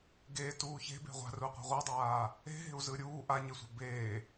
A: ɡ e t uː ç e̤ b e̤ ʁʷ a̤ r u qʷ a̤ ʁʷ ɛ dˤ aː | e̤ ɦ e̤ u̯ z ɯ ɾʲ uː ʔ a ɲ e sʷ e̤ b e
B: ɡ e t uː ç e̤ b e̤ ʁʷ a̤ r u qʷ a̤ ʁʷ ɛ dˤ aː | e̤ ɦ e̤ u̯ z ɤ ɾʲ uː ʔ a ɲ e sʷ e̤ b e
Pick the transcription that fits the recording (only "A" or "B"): A